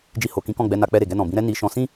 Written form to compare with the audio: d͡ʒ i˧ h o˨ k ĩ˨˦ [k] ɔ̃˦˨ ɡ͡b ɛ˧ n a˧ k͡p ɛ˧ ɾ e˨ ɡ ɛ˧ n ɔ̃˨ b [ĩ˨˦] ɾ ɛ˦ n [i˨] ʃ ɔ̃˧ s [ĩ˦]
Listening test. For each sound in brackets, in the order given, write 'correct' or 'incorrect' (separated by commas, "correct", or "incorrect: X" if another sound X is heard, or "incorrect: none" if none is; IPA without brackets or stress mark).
correct, correct, incorrect: i˧, correct